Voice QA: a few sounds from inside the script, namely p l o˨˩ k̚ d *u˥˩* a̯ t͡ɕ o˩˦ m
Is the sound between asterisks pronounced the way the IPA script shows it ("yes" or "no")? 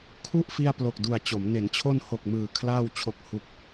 no